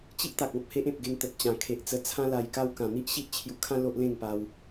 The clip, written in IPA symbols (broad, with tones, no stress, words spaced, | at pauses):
t͡ɕi˦ʔt̪a˨k̚ ɔ̃˨p̚he˦ʔẽ˨p̚ɡe˧ŋ t̪ə˨t̚t͡ɕã˨˩ kʰe˨ʔ t͡sə˧t͡sʰã˦la˧jka˦w kã˨˩n̪i˦ʔɕi˦ʔ t͡ɕʰju˧kʰã˦ lo˦ʔlẽ˥˧ŋpa˧w